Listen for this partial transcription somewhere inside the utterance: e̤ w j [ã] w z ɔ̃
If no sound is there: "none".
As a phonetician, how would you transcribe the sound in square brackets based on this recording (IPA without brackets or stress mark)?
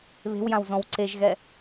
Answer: ã